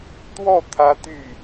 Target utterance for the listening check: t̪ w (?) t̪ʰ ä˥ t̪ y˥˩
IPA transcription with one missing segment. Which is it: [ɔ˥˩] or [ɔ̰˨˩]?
ɔ˥˩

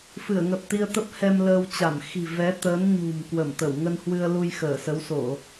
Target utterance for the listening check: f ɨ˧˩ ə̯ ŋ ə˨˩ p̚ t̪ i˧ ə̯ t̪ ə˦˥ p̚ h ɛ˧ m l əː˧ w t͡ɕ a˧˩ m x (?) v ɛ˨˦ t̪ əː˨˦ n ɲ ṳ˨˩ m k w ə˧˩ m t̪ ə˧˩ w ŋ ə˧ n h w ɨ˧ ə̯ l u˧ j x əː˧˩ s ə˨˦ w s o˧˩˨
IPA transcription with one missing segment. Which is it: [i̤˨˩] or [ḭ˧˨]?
i̤˨˩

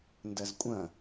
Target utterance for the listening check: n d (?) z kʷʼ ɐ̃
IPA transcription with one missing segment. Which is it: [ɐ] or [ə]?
ɐ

